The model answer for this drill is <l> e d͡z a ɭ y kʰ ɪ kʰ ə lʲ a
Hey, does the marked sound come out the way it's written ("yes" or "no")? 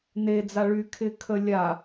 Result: no